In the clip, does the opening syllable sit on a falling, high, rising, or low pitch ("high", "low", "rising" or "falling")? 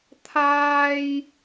high